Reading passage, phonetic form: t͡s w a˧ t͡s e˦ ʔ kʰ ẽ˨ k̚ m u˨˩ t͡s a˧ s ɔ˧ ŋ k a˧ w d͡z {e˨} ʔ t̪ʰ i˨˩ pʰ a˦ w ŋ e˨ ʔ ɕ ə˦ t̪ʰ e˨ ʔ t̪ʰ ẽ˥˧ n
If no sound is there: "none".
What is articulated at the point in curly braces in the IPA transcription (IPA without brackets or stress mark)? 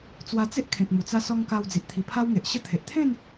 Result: i˨